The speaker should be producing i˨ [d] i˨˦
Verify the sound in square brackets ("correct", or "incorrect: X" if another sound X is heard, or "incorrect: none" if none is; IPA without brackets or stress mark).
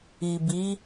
incorrect: b